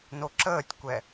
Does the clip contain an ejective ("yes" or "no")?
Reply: no